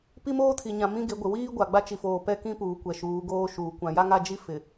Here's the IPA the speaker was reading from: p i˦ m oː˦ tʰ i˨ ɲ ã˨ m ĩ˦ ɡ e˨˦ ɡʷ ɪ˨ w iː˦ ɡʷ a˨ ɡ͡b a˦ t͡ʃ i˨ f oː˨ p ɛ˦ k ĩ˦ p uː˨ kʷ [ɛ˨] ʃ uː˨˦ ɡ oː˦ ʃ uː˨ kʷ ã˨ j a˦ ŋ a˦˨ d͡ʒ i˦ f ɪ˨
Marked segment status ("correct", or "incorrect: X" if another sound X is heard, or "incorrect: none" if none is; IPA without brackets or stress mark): correct